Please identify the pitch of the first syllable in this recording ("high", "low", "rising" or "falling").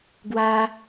high